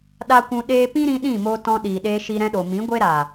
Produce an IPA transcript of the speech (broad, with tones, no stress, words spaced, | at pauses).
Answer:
ɗa˦kʷũ˧ ɗeː˧pĩ˦ɾĩ˧ ɗĩ˦˨mo˧tɔ̃˧ ɗiː˨ɗeː˧ʃi˧ ɾɛ̃˧ɗo˨mĩ˨˦ɡʷe˦ ɾaː˨